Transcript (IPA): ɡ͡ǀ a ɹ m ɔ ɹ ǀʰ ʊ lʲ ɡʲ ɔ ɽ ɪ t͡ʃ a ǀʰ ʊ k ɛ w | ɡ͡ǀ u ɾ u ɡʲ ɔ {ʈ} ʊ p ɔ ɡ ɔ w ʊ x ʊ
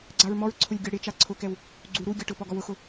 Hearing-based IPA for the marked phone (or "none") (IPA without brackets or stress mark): ʈ